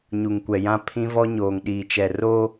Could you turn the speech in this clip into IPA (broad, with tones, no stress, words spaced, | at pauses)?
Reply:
ɲu˨ŋkʷɛ˨jã˦ pʰĩ˦vɔ˦ɲoː˨ŋ ɗiː˨t͡ʃɛ˨ ro˦